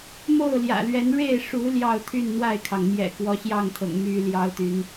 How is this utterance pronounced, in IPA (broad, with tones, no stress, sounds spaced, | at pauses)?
m o˥˨ ʊ̯ l j ä̰˨˩ l ɥ ɛ˨˦ n ɻ e˥˨ ɪ̯ ʂ u˨˦ l j ɑ˥˨ ʊ̯ t̪ʰ y˥˨ n n̪ w a˥˨ ɪ̯ kʰ ɑ˩ ŋ m j ɛ̰˨˩ k w ɔ˨˦ ɕ j ɑ˥˨ ŋ t̪ʰ ɤ̰˨˩ ŋ m y˦ l j ɑ˦ ʊ̯ t̪ y˨˦ n